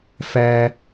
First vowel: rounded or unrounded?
unrounded